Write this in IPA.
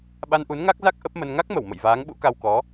ɓ a˧ n ʔ u˨˦ n ŋ a˦˥ k̚ z a˦˥ k̚ ʔ ə˦˥ p̚ m ə˧ n ŋ a˦˥ k̚ m ə˧˩ w m ə̰˧˨ j v aː˨˦ ŋ ɓ ṵ˧˥ k a˧ w k ɔ˨˦

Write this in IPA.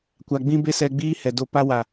kʷ a˨ ɡ͡b ĩ˧ b e˧ s ɛ˧ ɡ͡b iː˦ h ɛ˨ d o˧ p a˦ w a˨

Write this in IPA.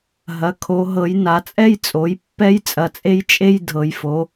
ɦ ɐ˩˧ kʰ o˩˧ ɦ ɤ˩˧ j n a˩˧ t͡sʼ ɛ˥ j t͡sʼ o˩˧ j pː ɛ˥ j t͡sʼ ɐ˩˧ t͡sʼ e˥ j t͡ʃʼ e˥ j dʱ ɤ˩˧ j f o˩˧

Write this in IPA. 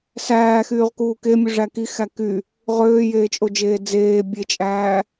s æː x yː ʁ k uː k e mʲ u ʐ æ k i x æ k y | ʁ øː j eː t͡ʃʼ o d͡ʒ eː d͡z eː bʲ e t͡ʃʼ æː

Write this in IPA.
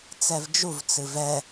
t͡s ɛ v d͡ʒ u v t͡s ɨ v ɛ

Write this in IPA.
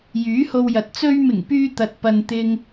j yː˨˥ h o˧ w j ɐ˨ t̚ t͡s ɵ˧ ɥ m ɪ˨˩ ŋ p yː˧ t̪ ɐ˨ t̚ p ɐ˧ n t̪ ɪ˥ ŋ

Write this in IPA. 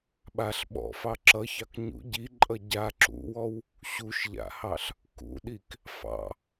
ɓ a ɬ ɓ ɔ̰ f ɑ ǁ ʌ ç ɑ k ɲ ṵ ɟ i ǃʼ ʌ ɟ a ǁ ṵ w ɔ w | ɕ u ʃ ʎ a̰ h ɑ ɬ | k ṵ ɗ i k | f ɑ̰

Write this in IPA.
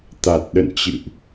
t̪ a˨˩ t̚ ɗ ə̰˧˨ n t͡ɕ ɨ̰˧˨ ʔ

